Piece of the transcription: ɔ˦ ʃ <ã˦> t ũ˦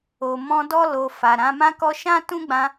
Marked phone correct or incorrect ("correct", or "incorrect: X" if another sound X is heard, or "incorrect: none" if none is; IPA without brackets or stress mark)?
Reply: correct